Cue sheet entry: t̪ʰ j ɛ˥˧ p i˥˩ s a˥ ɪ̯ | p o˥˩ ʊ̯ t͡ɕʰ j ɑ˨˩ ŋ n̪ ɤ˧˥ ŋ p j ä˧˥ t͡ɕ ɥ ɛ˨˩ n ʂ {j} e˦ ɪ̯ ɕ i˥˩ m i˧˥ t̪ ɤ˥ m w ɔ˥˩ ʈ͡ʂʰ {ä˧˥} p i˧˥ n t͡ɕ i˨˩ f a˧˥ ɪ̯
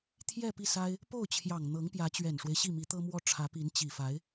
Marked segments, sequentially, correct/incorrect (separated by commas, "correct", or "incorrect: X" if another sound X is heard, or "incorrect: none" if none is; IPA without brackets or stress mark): incorrect: w, correct